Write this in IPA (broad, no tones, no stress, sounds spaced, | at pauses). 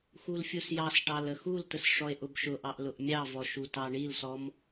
x u l fʲ u s j ɑ s ʈ ɑ l ə x u l t ə s ʂ ɔ e̯ ʔ ʊ b ʃ ʊ ʔ ɑ ʔ l ʊ ʔ mʲ ɑ v ɔ ʃ u t ɑ ɳ i l s ɔ m